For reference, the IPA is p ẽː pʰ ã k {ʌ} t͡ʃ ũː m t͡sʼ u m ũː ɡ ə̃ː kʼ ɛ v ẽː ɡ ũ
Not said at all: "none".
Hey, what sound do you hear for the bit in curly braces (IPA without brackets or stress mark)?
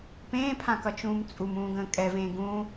ʌ